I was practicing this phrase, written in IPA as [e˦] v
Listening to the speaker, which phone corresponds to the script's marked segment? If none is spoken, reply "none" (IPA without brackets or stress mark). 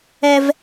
ɛ˦